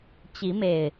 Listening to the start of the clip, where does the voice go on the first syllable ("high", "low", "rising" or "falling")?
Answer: rising